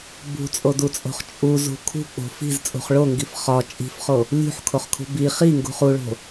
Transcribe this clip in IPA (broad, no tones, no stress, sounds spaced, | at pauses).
b ṳ t͡sʼ o d u t͡sʼ o̤ χ t͡ʃʼ u z ṳ kʰ ṳ k͡p o̤ f i̤ z t͡sʼ ṳ χ ɭ o ŋ ɡ i f χ ɒ t͡ʃʼ i̤ f χ o | lʲ ṳ ħ kʰ o χ kʰ ṳ b i χ i ŋ ɡ ṳ χ u ɭ o̤